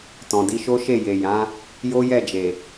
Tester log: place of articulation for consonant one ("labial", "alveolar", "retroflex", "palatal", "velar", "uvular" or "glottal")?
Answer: alveolar